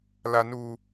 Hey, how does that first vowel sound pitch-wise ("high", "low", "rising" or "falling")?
high